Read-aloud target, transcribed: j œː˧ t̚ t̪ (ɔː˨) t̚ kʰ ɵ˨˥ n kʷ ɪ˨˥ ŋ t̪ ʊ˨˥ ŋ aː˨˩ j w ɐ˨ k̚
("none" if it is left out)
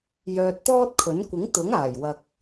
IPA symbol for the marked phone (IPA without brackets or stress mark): ɔː˥